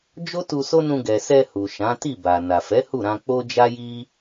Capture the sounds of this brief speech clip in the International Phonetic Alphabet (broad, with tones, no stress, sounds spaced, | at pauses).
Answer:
d͡ʒ o˦ t u˧ s o˦ n ũ˧ ɡ ɛ˨ s ɛ˧ h u˨ ʃ ã˨˦ t i˦˨ b a˨ n a˨ f ɛ˨˦ h u˦˨ ɾ ã˧ k͡p o˦ d͡ʒ a˦ j i˦